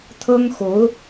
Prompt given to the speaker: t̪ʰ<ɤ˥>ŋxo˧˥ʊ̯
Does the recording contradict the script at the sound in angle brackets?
no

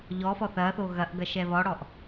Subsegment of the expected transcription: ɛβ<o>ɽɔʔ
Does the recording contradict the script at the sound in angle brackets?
yes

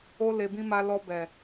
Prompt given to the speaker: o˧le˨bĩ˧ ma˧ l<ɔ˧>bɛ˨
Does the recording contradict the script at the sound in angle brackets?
no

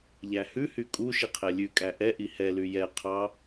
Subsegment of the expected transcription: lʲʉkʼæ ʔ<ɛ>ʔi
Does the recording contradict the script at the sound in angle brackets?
no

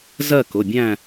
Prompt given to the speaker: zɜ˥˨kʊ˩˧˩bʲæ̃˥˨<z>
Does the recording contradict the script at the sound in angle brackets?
yes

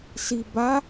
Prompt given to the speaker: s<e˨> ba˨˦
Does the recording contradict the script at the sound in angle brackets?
yes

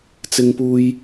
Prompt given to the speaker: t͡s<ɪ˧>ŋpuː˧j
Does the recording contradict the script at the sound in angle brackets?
no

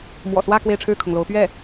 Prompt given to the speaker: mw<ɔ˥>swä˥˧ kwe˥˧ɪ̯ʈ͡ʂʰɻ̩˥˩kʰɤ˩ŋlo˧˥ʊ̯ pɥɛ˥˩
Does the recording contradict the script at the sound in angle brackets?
yes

